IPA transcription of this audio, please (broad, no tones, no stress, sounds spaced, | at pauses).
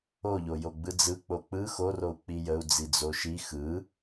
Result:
o ʎ o j o ɡ͡b ɯ d͡z ɯ k͡p o k͡p ɯ x o r o u̯ k͡p i j ə u̯ d͡z i d͡z o ʃ i x ɯ